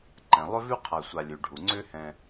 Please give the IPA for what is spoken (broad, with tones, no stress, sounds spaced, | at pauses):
ǃ ɛ̃˩ lˠ ʏ˥ v ʉ˥ qʰ a˨ sʷ a˨ lʲ ʉ˩ ɖʱ u˩ ŋ͡ǀ ʏ˦ h ɛ̃˨